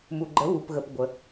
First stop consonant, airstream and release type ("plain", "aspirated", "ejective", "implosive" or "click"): click